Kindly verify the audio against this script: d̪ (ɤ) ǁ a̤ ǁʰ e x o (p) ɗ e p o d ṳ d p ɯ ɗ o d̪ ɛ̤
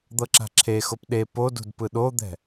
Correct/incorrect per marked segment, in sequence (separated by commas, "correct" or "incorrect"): correct, correct